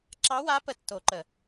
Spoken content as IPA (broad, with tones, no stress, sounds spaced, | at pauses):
ǁ ɑ˧˥ w a˧˥ p ə˧˩ tː o˨˩˦ ǃ ə˩